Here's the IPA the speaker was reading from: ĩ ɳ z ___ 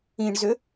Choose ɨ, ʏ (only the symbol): ʏ